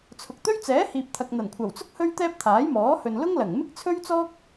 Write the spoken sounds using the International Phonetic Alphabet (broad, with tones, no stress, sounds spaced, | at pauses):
t͡sʰ ʊ˨ k̚ t̪ ɵ˥ ɥ t͡s ɛː˨˥ h iː˨ p̚ t̪ʰ ɐ˨ k̚ n̪ ɐ˨˩ n kʷʰ ɐ˨˩ w t͡s ʊ˥ k̚ h ɵ˥ ɥ t̪ ɛː˥ p̚ t̪ʰ aː˨˥ j m ɔː˨˥ h ɵ˨ n l ʊ˥ ŋ l ɐ˨˩ ŋ m ɪ˥ k̚ t͡sʰ ɵ˥ ɥ t͡s ɔː˥ k̚